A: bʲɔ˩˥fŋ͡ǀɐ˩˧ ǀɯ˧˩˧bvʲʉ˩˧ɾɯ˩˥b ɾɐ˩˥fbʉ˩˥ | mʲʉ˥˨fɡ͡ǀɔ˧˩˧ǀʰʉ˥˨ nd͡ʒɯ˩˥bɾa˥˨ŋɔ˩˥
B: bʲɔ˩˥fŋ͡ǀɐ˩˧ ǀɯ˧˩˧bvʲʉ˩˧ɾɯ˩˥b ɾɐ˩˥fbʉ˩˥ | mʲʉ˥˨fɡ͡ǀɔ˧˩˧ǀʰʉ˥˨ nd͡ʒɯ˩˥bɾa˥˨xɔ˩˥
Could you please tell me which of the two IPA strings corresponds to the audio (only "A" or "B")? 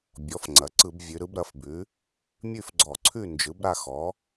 B